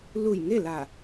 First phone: l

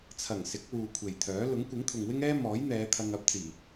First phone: t͡sʰ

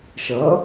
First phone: ʃ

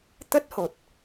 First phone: t̪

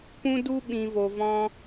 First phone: p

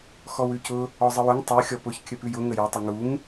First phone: x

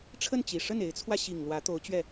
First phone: ʈ͡ʂʰ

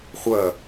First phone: χʷ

